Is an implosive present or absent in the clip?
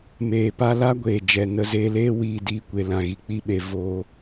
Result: present